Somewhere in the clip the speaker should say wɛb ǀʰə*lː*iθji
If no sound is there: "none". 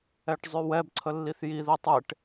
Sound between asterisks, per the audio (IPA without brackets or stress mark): lː